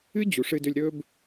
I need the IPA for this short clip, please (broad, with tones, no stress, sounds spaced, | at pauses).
ɨ˦ d͡ʑ u˨ ʂ ɨ˧ d ɵ˧ lʲ ɾ ɵ˧ b